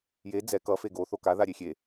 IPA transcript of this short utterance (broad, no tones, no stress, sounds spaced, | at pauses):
j e d͡z ɛ k ʌ f e ɡ o θ o k a ð a ɾʲ e xʲ e